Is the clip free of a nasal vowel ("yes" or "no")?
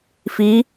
yes